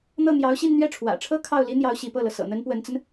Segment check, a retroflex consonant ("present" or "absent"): present